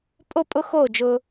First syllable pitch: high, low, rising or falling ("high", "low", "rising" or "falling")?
high